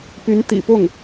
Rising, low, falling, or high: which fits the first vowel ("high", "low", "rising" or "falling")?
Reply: rising